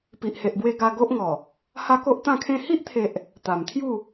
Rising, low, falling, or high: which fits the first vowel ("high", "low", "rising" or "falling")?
low